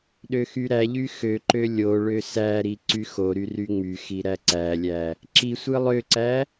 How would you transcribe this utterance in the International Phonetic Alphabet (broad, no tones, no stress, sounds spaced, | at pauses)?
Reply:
ɗ ø x y ɾ æ ʎ y x ø ǃ ø lʲ o ɭ ø s æ ɾ i ǀ y x o ɾ y r y ŋ͡m y x i ɾ æ ǀ æ lʲ æ | ǁ i sʷ ɯ lˠ ø ǀ æ